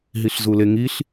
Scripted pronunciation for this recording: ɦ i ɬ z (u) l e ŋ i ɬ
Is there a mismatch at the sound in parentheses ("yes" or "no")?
no